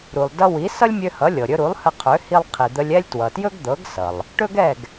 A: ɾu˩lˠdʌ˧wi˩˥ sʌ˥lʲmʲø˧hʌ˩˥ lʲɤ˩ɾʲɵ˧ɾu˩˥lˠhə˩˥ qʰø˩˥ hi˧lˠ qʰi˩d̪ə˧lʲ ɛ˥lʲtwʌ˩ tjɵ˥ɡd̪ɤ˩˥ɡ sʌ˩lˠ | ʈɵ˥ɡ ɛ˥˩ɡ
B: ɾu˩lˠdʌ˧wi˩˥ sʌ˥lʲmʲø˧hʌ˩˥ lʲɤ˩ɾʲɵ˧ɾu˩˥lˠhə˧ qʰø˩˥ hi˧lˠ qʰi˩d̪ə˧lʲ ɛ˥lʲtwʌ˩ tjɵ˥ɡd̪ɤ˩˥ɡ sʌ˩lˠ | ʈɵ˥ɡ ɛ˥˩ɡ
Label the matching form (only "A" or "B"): B